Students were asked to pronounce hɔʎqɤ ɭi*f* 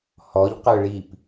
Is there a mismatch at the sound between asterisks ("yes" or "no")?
yes